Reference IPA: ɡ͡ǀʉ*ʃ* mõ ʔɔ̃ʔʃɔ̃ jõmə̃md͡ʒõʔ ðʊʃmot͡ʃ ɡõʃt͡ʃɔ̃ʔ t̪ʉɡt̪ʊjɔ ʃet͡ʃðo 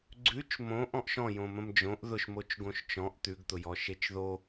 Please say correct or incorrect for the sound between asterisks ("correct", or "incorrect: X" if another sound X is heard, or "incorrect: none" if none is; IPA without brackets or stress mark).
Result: incorrect: t͡ʃ